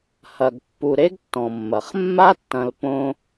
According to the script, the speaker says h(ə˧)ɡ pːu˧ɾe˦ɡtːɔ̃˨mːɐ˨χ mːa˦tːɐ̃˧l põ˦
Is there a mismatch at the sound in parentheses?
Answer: yes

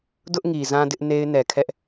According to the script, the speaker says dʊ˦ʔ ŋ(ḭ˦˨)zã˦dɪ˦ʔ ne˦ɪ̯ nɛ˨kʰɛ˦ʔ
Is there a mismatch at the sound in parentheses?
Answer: yes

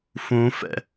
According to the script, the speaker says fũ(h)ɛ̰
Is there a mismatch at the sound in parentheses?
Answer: yes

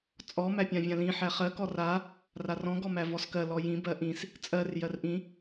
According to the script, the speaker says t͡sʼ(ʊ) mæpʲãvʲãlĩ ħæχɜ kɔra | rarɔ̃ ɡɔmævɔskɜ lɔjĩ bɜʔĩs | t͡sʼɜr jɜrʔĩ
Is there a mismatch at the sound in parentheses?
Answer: yes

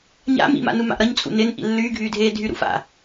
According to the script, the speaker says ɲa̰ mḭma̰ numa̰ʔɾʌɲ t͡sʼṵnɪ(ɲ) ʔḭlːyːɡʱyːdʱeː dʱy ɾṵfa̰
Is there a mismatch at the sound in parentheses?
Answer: yes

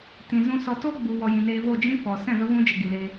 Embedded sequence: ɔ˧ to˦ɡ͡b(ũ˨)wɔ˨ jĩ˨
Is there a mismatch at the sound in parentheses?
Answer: yes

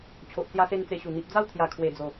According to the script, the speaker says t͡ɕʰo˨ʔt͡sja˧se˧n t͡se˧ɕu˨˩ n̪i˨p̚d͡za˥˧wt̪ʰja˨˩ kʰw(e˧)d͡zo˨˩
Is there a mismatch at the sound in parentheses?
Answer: yes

